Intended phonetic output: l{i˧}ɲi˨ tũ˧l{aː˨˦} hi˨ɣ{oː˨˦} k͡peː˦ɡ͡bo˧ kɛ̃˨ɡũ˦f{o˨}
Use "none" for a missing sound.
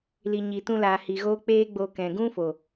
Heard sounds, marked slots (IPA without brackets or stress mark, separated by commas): i˨, aː˨, oː˦, o˨